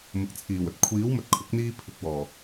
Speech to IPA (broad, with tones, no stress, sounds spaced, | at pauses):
m ʊ˨˥ k̚ t͡sʰ iː˨˩ w ɵ˨ t̚ kʷʰ iː˨˥ w m ɵ˨ t̚ kʰ ʊ˨˥ k̚ n̪ iː˧ pʰ ɪ˨˥ k̚ w ɔː˨˩